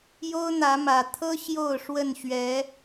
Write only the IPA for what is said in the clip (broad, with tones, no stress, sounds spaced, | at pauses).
j o˦ ʊ̯ n̪ ä˨˦ m ä˨˩ t̪ʰ ɤ˦ ɕ j o˥˨ ʊ̯ ʂ w ə˥˨ n ɕ ɥ ɛ˨˦